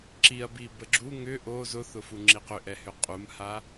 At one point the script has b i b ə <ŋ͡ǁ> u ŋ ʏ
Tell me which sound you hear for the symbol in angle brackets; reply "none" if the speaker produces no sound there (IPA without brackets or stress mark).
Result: ɡ͡ǁ